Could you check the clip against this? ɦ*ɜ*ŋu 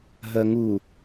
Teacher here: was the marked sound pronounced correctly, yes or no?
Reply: yes